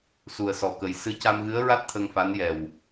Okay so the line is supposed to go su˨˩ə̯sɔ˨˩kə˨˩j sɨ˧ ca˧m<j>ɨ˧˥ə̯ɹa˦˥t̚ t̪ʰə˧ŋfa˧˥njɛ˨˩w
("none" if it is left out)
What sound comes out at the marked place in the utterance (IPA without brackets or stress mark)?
ɣ